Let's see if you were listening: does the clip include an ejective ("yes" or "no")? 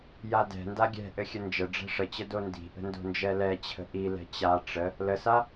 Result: no